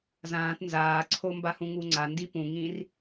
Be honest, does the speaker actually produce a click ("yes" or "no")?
yes